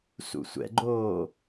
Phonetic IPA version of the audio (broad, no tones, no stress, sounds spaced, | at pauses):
s ṵ sʷ ɛ̰ ɡ͡ǃ oː